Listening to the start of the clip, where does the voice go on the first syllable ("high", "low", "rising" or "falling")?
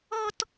high